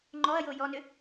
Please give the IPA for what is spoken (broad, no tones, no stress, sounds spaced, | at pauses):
ŋ͡ǃ ɔ ɐ̯ j o j ɔ n ʏ